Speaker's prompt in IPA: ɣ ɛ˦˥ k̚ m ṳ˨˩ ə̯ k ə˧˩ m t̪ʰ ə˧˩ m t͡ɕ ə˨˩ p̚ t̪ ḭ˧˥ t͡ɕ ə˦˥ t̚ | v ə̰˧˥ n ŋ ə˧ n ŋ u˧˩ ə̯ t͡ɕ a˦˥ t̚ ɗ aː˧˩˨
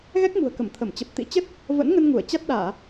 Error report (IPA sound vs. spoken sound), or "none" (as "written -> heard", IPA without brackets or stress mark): none